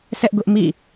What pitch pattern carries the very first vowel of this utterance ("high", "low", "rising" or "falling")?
high